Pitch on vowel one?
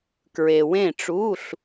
low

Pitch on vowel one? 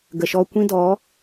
low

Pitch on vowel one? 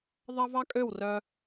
high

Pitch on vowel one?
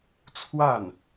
falling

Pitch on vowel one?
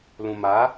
low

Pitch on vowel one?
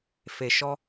low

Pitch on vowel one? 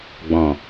low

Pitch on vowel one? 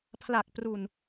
low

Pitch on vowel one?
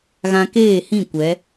high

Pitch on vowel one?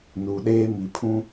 low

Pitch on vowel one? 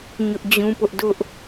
high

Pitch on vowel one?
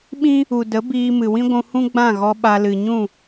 high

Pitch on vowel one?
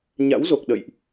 rising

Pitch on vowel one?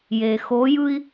low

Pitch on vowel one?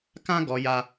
high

